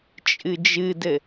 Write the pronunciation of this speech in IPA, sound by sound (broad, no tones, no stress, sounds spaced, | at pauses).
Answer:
t͡ʃʼ ɨ d͡ʒ ɨ d ɘ